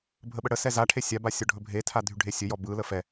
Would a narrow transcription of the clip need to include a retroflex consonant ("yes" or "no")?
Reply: yes